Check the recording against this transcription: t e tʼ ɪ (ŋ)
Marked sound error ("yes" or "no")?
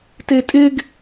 yes